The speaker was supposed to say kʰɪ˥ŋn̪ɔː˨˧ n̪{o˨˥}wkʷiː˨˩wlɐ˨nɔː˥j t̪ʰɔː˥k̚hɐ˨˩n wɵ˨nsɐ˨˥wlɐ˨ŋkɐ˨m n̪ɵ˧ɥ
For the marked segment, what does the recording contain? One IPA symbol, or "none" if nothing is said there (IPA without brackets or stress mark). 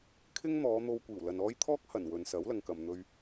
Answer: o˧